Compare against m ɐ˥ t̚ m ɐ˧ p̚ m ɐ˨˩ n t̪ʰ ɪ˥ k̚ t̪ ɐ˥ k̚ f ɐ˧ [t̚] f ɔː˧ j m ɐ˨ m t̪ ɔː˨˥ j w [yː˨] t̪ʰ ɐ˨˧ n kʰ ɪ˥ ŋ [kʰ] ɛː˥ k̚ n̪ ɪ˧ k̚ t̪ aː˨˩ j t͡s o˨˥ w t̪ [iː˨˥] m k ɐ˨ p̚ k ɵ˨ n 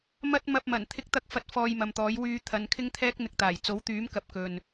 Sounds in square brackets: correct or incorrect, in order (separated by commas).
correct, incorrect, incorrect, incorrect